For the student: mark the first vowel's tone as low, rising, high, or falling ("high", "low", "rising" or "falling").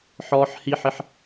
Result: high